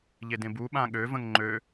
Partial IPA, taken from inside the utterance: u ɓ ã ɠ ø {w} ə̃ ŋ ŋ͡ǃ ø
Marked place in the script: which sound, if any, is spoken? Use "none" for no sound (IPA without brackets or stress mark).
v